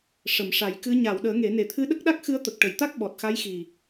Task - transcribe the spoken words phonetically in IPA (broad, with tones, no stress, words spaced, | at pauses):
ʂə˨˩˨mʂa˨˩˦jkɨ˧˥ ɲa˨˩˨w ɗəː˨˩˦ŋe˨˩˦ne˨˩˦ t̪ʰɨ˧˥ɗə˦˥k̚ɗa˦˥k̚ xɨ˧˥ə̯t̪ə˨˩k̚ʈə˨˩˨jt̪a˦˥k̚ ɓɔ˨˩t̚xa˧˥jxi˨˩